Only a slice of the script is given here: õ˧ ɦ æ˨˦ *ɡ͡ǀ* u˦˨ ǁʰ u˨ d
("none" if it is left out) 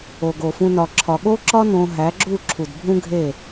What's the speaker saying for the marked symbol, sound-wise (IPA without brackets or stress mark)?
ɡ͡ǁ